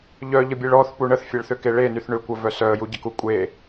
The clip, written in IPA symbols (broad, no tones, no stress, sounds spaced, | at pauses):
ʎ œ ʎ ə bʲ e ɭ ɔ θ p u ɳ ə θ fʲ e ɭ θ ʏ k e ɭ e n y θ ɳ ʏ kʷ ə v œ s œ ə̯ j u ɟ ə k u kʷʼ e